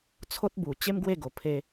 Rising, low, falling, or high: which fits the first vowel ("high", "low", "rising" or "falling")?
high